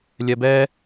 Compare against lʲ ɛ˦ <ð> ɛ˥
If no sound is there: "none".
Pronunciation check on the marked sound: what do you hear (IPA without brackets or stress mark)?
b